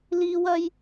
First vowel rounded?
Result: no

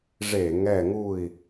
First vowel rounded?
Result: no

